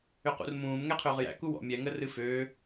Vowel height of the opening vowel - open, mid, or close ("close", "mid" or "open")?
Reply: close